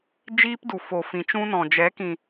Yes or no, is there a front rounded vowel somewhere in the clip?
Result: no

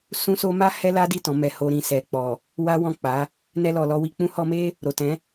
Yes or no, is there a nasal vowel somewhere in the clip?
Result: yes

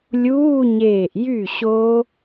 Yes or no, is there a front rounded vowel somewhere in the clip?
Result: yes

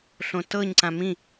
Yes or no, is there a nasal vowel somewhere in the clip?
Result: yes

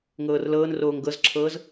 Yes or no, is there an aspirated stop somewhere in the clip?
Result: yes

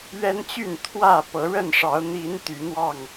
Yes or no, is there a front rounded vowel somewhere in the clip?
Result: yes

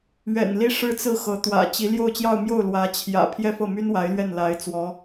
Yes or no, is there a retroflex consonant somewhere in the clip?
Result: yes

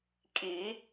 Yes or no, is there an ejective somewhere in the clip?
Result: yes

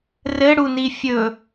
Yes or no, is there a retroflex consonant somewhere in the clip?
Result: yes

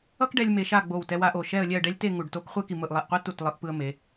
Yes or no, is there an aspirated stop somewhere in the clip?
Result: no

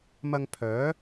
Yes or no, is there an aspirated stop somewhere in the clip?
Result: yes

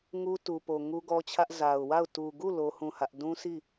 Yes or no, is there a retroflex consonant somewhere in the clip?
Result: no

